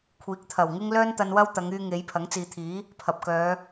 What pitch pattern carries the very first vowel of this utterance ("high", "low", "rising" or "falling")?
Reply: rising